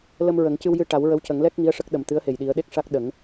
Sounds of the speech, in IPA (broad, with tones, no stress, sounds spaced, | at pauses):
l ə˧ m ɹ ə˨˩˦ ŋ c ɨ˧ w j ɨ˧ ʈ a˨˩˦ w ɹ ə˧˥ w c ə˨˩˦ ŋ l ɛ˦˥ k̚ ŋ i˧˥ ə̯ ʂ ə˦˥ k̚ ɗ ə˨˩ m t̪ ɨ˧˥ ə̯ h e˨˩ j ɗ i˨˩˦ ə̯ ɗ e˦˥ k̚ ʂ a˦˥ k̚ ɗ ə˨˩˦ ŋ